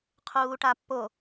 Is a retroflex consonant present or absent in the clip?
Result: present